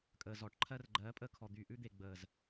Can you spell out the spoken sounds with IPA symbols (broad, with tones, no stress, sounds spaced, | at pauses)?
kʼ əː˨ z ɔː˨ ʈ ǃʰ ɜ˧ r ɡ͡ǃ ɜː˨˦ pʼ əː˧ kʰ ɔ˨ d̪ y˨ ʔ ʉ˧ d̪ e˨ ɡ͡b əː˨ z